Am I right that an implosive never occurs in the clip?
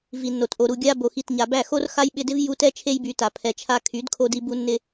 no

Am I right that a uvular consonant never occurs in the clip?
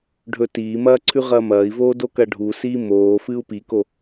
no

